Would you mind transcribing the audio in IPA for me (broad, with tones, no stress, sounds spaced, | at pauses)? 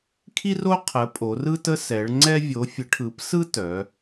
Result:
kʰ i˥ r o˥ qʰ ə˨˦ pʼ o˨˦ r ɯ˥ t ə˥ s ɛ˨˦ ɭ ŋ͡ǀ ɛ˥ vʲ o˨˦ fʲ ə˨˦ ʈʰ ɯ˨˦ p s ɯ˥ t œ˨˦